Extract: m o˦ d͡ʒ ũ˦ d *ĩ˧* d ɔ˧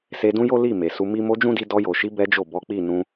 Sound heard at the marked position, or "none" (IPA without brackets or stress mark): i˧